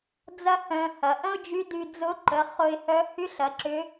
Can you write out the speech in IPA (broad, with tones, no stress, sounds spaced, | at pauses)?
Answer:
d͡z ɐ˥ h œ̃˧ h ɐ˩˧ ʔ ə̃˥ ʊ̯ d͡ʒ y˧˥ d y˧ d͡z ʊ˧˥ ǃ ə˩˧ χ ʊ˧ ɪ̯ h œ˧˥ h y˧˥ ɬ ɐ˩˧ ǁ ʏ˧˥